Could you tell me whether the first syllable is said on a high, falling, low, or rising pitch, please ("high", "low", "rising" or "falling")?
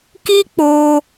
high